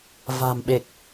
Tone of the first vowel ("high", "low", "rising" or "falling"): low